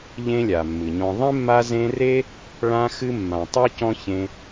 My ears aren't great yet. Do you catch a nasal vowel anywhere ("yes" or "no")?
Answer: yes